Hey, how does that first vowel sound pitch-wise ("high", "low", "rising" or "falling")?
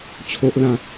low